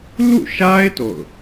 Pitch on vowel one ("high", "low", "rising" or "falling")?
falling